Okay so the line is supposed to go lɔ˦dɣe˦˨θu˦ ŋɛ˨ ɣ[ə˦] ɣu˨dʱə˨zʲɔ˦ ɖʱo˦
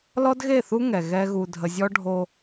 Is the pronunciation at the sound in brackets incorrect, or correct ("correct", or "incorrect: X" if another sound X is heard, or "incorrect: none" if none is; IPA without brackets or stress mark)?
incorrect: ɛ˦